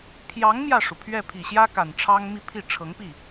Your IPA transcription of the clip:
pʰ j ɑ˧˥ ŋ m j ä˥˩ ʂ u˩ pʰ ɥ ɛ˥˩ pʰ i˨˩ ɕ j ä˥ k a˨˩ n ʈ͡ʂʰ ɑ˥ ŋ m i˥˧ pʰ i˥˩ ʈ͡ʂʰ ɤ˧˥ ŋ p i˥˩

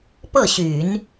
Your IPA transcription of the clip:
p ɤ˥˩ ɕ y˨˩˦ n

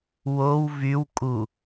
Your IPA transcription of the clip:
w o w v y w kʼ u

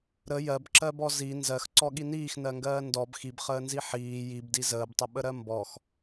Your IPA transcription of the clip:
ɾ ə j ɜ b ǁ ɜ b ɔ z i n z ɜ x ǀ ɔ ɠ i n iː x n ɜ ŋ ɡ ɜː n d ɔ b x i b χ əː n z i ħ iː j i b d i z əː b tˤ ə ɓ ə ɾ ɜ m b ɔ x

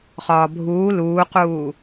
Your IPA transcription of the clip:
χ ɒː bʱ uː l uː q uː

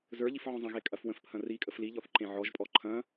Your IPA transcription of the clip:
z ə˞ ʎ i f ʕ ɔ̃ zˤ ɐ̃ ɣ e kʼ ɐ f w ə̃ f pʰ ɐ̃ r i kʼ ə f l i ʎ ɔ θ ǃ ẽ ʕ ɔ ʒ pʼ ɔ ǃʰ ɐ̃

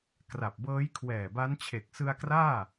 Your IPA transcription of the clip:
k r a˨˩ p̚ b ɤː˦˥ j kʰ w ɛː˨˩ b a˦˥ n t͡ɕʰ e˨˩ k̚ s ɯ˧ a̯ k r aː˥˩

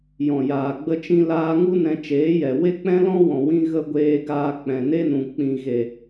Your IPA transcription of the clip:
j ɔ̃˨ j aː˨ ɡ͡b ə˧ t͡ʃ ĩ˧ l aː˧ ŋ u˦ n ɛ̃˧ t͡ʃ eː˨˦ j ɛ˨ w e˦ k͡p ɛ̃˦ l ɔ̃˦ w ɔ̃˨ w ĩ˧ ɣ ə˧ ɡʷ eː˧ ɡ aː˧ k͡p ɛ̃˨ n e˦ n ũ˨ k͡p ĩ˨ ɣ e˨

